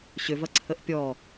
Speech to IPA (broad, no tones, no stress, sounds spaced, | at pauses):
ɕ ʏ v ɐ ǀʰ ə ʔ pʲ ɔ